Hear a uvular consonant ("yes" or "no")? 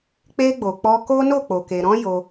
no